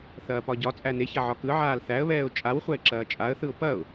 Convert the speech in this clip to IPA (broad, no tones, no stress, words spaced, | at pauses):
θɐːpɒɟɒt͡sʼæ neçɐ ʕɒkɯʕaːl θæə̯βɛːʊ̯ t͡ʃʼawχʷæɪ̯ ǁɐːt͡ʃʼaə̯θɯʊ̯ pɐʊ̯